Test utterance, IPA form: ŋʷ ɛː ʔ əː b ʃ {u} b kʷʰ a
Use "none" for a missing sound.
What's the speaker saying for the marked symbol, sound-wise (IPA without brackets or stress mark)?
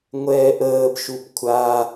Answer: u